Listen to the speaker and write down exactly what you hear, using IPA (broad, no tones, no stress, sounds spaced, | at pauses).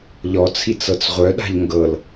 ʎ ɔ t͡sʰ i t͡s ɤ t͡s ʁʷ œ ɗ a̤ ʎ ŋ ɡ ɤ l